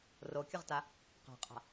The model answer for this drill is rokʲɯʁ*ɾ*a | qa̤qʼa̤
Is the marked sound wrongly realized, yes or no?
yes